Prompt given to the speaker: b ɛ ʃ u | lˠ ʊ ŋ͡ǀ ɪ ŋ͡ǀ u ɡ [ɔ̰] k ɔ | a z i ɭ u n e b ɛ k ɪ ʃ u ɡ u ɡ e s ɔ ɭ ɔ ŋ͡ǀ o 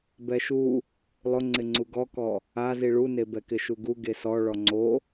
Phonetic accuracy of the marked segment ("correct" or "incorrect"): incorrect